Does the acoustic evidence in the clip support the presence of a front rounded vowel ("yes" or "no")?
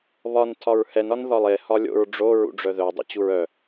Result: yes